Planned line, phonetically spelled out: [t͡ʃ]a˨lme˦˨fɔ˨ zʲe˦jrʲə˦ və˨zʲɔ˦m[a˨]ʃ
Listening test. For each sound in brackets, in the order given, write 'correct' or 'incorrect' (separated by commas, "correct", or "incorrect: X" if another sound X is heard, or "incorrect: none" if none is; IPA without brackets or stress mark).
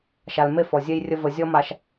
incorrect: ʃ, correct